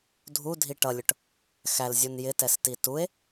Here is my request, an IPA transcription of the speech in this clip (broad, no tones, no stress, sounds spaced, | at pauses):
dʱ u dʱ i ʈ ʌ lʲ ʊ ʈ | x æ l zʲ u n j ɪ t ɛ s t i t u e̯